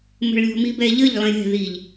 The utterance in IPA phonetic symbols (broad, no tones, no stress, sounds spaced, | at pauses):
m ə̤ ɭ lʲ ɔ̤ m i b ɛ ʎ ə ʎ lˠ ĩ ɾʲ ɛ̤ ð i ʎ